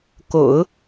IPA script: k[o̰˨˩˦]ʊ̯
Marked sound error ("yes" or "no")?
no